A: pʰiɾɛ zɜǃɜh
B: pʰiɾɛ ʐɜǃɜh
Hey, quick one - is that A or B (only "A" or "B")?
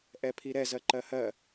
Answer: A